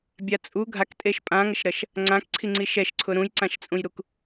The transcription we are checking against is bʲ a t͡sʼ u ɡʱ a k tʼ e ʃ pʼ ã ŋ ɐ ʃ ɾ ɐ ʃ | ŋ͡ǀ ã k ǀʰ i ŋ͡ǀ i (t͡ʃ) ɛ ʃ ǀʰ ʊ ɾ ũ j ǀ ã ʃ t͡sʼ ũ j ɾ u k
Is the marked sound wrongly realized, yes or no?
yes